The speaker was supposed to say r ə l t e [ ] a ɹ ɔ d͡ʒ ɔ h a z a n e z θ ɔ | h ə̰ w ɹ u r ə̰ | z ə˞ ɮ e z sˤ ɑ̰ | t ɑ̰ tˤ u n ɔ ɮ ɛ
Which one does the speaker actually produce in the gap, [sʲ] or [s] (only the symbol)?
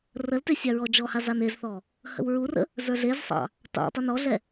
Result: sʲ